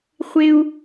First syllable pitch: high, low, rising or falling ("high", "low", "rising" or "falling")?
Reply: high